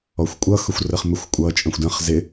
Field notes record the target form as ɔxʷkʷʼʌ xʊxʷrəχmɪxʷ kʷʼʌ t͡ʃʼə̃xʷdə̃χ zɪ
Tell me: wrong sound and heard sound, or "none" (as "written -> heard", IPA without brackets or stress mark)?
none